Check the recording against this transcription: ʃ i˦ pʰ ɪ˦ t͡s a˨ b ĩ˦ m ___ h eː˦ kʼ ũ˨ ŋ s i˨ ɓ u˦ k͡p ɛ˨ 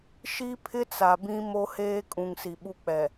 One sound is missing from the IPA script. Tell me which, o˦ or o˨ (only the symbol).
o˦